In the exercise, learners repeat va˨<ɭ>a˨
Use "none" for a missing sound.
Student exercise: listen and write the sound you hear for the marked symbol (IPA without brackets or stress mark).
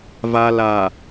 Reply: l